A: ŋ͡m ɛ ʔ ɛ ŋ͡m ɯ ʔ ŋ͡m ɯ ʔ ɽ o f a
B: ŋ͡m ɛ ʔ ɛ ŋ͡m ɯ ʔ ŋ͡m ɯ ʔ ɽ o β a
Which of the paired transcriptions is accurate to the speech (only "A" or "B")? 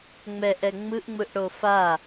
A